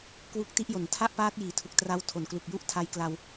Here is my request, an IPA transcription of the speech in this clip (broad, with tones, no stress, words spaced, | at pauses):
kwu˦˥k̚ti˦˥ʔjo˩˦n tʰa˥˩ʔpaː˦˥t̚ jiː˩˦tʰu˨˩k̚tra˧w tʰo˨˩nklu˨˩k̚ju˥˩ʔ tʰa˧jkla˧w